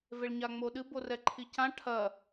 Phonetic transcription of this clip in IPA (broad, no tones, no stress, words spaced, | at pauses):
veɭɲaŋ͡moɗɨ borɛǃʰicã ʈʰɐ